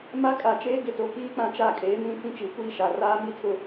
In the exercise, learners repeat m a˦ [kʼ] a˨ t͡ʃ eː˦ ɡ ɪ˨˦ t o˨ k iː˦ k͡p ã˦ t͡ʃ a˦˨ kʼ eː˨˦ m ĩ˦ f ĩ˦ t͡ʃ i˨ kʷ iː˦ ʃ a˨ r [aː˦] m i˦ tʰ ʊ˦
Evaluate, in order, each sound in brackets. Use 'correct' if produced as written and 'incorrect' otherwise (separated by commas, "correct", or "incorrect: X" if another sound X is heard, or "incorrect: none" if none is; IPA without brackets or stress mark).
correct, correct